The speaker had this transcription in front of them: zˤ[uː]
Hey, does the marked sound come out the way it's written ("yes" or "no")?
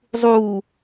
yes